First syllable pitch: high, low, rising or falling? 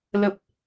low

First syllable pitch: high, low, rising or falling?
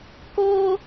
high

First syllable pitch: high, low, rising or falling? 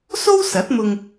high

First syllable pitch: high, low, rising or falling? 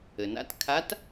low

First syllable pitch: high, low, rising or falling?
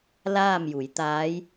falling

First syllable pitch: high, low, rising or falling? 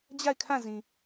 falling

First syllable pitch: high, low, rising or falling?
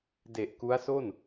low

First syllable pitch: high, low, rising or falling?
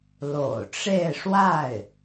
low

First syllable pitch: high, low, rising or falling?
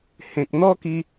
low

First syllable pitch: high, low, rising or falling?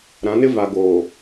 rising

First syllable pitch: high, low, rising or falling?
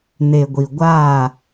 low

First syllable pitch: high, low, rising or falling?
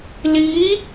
rising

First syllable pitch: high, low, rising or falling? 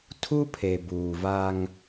high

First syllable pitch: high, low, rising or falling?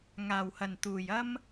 low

